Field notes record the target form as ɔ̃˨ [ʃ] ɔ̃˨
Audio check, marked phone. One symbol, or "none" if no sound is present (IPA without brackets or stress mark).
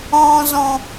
z